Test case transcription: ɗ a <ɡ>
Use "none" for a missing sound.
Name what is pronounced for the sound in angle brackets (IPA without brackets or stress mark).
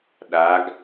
ɡ